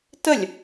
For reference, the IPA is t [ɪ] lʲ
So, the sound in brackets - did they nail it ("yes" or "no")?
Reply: no